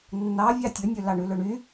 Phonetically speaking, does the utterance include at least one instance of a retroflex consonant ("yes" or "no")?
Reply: yes